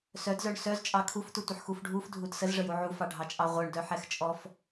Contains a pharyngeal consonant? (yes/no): yes